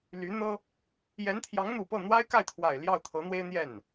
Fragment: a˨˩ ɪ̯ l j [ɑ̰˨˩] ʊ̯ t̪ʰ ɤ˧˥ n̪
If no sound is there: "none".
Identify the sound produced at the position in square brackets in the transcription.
ɑ˥˩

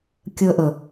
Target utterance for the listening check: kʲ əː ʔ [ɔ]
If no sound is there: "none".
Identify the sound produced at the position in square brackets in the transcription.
ə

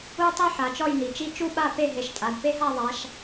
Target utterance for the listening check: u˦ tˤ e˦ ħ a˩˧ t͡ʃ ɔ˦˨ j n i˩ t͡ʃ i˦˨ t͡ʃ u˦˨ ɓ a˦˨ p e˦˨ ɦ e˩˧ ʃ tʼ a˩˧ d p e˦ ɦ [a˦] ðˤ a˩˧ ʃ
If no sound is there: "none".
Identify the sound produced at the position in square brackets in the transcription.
a˦˨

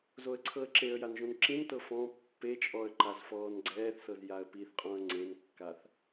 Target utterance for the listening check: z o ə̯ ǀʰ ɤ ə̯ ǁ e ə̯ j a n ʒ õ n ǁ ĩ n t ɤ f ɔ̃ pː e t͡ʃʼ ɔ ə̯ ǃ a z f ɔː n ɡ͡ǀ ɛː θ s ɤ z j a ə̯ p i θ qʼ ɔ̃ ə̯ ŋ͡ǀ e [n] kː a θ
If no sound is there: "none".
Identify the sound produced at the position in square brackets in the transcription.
n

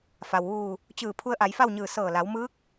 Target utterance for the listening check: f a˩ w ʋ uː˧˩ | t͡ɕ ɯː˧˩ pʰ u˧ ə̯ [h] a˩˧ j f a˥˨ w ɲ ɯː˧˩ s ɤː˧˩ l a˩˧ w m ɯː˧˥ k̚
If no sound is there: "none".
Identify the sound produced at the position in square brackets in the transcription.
ʔ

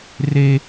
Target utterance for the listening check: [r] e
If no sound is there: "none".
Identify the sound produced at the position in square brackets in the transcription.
r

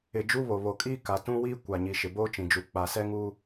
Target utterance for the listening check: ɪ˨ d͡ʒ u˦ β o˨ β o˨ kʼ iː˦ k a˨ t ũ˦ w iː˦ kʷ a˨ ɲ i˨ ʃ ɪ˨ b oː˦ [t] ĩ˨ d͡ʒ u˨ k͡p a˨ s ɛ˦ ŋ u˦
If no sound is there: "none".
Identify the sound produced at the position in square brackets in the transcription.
t͡ʃ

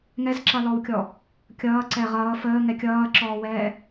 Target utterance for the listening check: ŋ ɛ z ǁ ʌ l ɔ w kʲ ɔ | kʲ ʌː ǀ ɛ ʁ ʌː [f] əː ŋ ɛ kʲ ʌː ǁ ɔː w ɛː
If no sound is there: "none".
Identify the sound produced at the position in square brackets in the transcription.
f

